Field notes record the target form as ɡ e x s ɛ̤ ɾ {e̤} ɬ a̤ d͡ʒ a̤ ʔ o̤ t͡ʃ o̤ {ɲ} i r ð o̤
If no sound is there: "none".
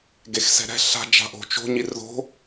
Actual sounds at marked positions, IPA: ɛ̤, ɲ

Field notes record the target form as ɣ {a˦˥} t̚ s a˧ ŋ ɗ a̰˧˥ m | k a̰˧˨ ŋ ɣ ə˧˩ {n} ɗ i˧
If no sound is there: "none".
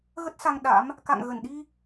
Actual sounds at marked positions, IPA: ə˦˥, n

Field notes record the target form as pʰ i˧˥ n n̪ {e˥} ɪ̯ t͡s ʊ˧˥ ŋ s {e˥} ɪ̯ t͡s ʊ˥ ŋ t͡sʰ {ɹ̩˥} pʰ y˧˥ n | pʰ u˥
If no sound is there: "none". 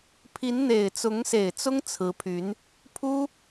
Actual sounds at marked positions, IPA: e˨˩, e˨˩, ɹ̩˧˥

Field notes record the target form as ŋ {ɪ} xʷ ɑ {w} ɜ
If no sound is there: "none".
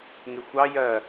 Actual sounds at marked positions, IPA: ɪ, j

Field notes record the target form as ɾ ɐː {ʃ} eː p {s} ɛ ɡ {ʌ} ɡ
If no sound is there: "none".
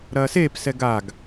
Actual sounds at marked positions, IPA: s, s, a

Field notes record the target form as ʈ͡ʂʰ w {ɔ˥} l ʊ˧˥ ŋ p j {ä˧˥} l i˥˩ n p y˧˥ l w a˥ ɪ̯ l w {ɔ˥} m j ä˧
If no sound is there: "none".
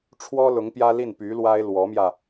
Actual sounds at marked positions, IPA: ɔ˥, ä˥, ɔ˧˥

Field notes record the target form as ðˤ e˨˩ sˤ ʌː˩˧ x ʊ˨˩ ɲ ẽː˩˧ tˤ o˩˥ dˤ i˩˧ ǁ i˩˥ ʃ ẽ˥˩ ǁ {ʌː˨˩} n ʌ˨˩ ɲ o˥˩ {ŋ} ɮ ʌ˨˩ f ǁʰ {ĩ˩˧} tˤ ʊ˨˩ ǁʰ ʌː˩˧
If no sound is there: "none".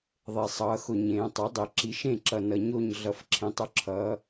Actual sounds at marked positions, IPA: ʌ˨˩, ɲ, ẽ˩˧

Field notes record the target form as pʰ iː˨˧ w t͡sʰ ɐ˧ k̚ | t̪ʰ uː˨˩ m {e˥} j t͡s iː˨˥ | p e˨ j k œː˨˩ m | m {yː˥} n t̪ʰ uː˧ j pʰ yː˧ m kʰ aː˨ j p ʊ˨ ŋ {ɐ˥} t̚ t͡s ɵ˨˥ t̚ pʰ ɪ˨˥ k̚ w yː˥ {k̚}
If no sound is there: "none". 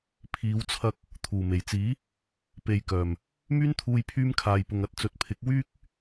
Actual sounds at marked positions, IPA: e˨˩, yː˥, ɐ˨˥, k̚

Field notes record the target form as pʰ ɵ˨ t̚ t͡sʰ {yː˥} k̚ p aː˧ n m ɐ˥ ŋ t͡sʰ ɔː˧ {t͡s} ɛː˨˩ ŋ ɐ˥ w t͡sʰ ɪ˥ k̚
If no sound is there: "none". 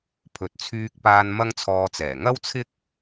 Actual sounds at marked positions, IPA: yː˧, t͡s

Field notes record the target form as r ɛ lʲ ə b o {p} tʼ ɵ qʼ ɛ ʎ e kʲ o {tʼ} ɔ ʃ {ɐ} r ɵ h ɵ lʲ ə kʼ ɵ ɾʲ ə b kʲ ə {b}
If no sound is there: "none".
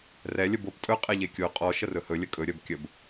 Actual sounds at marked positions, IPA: p, qʼ, ə, b

